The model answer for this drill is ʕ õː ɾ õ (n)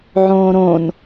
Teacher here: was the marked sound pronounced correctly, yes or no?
yes